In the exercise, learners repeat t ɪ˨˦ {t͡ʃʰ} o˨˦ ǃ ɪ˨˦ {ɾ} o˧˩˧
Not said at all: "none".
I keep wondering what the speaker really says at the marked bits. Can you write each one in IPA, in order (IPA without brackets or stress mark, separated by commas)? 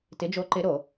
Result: d͡ʒ, ɾ